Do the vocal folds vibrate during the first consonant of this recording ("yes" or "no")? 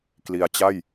no